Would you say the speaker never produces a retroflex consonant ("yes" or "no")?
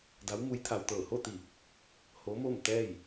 yes